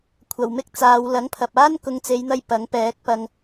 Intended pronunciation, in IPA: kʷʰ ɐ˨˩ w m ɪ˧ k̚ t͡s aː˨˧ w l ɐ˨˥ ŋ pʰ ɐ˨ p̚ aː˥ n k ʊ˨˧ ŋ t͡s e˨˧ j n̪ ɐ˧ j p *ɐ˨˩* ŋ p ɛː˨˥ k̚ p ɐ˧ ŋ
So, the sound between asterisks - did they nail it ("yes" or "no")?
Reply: no